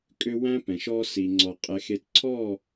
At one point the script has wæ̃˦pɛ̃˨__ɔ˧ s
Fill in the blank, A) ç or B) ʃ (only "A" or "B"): B